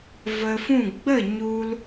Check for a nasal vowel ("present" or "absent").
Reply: present